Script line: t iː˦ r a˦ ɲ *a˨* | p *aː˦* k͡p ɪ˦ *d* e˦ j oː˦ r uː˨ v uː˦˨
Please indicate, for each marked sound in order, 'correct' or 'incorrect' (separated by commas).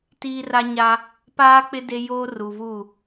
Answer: incorrect, correct, correct